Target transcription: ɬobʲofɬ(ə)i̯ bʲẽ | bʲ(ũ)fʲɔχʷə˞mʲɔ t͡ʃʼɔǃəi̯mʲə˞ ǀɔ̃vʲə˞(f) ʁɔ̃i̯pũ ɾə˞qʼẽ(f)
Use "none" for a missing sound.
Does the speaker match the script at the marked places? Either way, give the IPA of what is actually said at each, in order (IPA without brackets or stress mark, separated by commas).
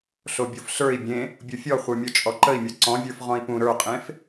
ə˞, u, f, f